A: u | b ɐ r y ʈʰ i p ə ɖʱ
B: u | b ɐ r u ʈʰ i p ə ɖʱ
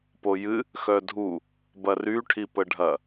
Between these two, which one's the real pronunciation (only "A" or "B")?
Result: A